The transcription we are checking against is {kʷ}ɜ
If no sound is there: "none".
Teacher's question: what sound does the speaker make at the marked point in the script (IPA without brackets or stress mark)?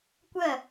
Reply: kʷ